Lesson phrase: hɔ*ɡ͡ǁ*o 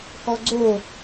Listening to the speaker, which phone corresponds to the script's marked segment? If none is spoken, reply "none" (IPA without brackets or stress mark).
ɡ͡ǀ